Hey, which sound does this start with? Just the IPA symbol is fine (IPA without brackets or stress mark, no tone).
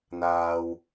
n̪